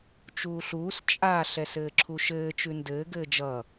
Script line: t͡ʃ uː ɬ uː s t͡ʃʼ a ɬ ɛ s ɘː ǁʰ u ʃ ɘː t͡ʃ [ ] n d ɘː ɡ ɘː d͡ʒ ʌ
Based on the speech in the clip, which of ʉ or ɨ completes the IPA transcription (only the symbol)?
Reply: ʉ